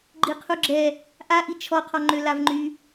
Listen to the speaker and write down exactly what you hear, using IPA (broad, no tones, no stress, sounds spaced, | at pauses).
ɡ͡ǃ i qʰ u ɡ͡ǁ ɛ | ʔ a ʔ i t͡ʃʰ ɔ qʰ ɔ ŋ͡ǃ ø l a v ŋ͡ǃ y